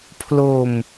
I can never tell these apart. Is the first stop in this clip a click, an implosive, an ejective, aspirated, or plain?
aspirated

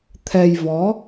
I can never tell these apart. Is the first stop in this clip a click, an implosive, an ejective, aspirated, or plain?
aspirated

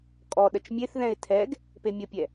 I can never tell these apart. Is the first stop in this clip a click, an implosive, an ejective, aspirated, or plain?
ejective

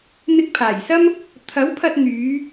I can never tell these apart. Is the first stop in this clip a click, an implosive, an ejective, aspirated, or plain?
plain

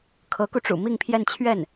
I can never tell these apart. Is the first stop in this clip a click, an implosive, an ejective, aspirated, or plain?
aspirated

